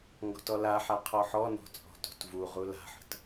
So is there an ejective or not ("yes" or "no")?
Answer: yes